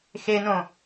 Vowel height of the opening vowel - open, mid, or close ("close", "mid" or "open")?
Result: mid